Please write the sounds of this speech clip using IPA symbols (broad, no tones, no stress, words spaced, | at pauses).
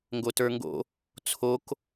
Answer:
ŋɡotə˞ŋɡo̰ | t͡sʰok